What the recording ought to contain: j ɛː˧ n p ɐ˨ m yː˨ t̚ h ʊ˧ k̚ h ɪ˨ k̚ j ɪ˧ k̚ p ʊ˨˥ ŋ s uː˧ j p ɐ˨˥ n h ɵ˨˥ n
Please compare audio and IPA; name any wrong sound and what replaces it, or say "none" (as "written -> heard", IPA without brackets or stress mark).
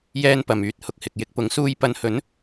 none